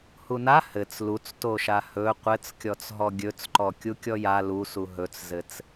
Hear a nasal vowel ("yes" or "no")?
no